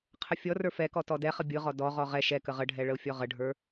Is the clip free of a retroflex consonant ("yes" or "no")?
no